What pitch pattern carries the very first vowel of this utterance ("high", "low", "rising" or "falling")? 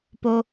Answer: low